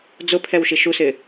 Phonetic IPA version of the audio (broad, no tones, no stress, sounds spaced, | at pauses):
d͡z ʊ pʰ ɛ w ʃ i ʃ u s ɪː